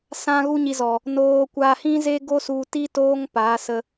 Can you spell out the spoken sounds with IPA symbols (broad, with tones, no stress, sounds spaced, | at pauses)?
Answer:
s ã˦ ɣ u˦ ɲ i˧ z ɔ˨ | n oː˧ kʷ a˧ h ĩ˦ z e˦ ɡ o˦ s u˧ t i˦ t oː˦ ŋ p a˨˦ s ə˧